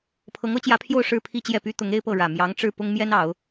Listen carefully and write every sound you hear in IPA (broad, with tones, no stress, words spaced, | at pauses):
pʰɤ˧˥ŋɤ˧˥t͡ɕjä˧˥pʰjo˥˧ʊ̯ ʂɻ̩˥˧pʰi˥˧t͡ɕjɛ˥˩py˥ t̪ʊ˧˥ŋ e˥ɪ̯pɤ˥˩ ɻä˨˩ mjɑ˧˥ŋʈ͡ʂɻ̩˥˩ pʊ˥ŋmjɛ˥nɑ˨˩˦ʊ̯